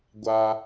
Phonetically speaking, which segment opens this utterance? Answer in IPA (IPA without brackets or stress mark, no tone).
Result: ɡʷ